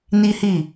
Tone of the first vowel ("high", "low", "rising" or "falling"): high